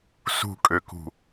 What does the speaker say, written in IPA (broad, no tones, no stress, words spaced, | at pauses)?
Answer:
sṳkʼøkṳ